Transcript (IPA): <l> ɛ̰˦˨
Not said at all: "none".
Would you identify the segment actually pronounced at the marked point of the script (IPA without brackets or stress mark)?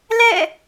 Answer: l